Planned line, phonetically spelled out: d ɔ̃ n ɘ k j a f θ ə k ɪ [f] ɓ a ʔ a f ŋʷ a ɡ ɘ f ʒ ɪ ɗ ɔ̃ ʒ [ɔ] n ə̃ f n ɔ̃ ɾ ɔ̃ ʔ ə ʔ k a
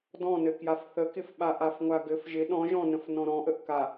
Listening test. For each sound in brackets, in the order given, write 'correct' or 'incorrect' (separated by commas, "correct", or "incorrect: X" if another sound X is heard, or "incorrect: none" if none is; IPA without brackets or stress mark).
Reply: correct, incorrect: ɔ̃